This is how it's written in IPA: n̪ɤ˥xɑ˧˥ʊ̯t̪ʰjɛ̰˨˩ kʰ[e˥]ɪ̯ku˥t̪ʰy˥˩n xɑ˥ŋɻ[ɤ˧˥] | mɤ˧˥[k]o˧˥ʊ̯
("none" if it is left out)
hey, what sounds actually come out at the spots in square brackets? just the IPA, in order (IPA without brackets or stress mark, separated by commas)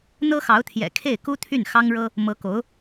e˥˩, ɤ˥, k